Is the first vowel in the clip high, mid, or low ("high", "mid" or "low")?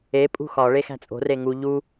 mid